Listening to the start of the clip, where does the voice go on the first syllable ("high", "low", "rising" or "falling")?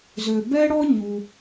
low